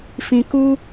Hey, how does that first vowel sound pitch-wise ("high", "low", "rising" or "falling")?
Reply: low